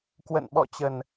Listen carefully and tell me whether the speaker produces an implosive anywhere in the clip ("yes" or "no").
yes